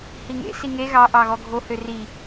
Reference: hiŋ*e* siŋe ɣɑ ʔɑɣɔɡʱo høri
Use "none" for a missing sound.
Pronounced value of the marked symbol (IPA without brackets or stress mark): ḛ